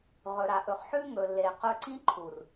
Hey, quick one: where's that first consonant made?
uvula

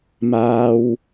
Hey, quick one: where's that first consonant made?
lips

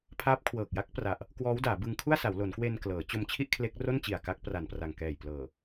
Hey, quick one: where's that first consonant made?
lips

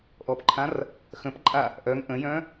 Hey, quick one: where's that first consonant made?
throat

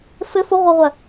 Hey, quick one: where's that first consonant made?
lips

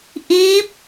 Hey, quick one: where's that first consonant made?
throat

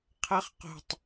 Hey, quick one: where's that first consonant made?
uvula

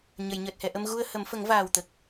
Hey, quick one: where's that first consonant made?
palate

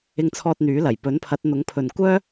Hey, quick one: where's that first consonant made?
velum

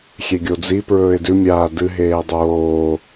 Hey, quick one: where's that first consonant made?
velum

